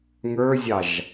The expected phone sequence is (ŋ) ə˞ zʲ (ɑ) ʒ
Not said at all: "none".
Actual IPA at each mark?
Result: ŋ, ɑ

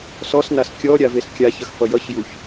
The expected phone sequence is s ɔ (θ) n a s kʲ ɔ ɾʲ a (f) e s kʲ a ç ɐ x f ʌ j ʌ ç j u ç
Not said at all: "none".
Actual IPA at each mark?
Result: s, v

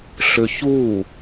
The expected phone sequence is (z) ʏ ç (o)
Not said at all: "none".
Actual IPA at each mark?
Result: ɬ, u

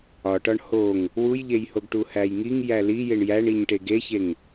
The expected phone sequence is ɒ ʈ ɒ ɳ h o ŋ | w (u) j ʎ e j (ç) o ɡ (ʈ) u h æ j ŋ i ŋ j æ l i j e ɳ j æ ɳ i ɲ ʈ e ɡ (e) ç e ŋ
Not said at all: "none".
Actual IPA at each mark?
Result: u, h, ʈ, e

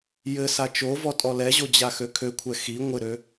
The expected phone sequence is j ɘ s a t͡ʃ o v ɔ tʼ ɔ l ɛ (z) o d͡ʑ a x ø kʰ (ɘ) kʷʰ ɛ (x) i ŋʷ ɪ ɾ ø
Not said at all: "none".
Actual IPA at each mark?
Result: ʑ, ø, x

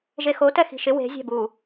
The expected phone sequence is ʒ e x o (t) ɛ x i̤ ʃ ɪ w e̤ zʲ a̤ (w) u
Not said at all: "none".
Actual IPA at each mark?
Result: t, b

